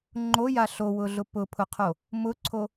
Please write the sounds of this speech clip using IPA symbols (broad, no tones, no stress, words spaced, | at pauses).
ŋ͡ǃoja ɬowʊɮʊ pʊpʰʊqʰo | mʊǀʰo